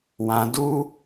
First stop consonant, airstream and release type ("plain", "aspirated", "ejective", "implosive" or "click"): plain